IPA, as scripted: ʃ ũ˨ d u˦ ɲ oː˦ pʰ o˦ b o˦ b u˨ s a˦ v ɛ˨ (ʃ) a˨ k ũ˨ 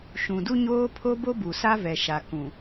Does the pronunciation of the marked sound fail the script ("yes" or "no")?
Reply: no